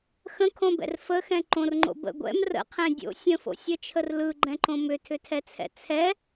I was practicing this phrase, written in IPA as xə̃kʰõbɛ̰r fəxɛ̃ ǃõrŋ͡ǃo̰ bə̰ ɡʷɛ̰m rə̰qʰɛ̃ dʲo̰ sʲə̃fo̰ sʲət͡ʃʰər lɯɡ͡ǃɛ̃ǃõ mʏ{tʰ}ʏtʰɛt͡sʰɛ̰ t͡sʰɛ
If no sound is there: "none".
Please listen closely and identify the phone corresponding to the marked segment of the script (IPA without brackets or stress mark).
tʰ